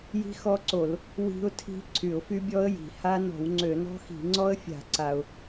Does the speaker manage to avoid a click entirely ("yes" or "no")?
no